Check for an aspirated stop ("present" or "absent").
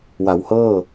absent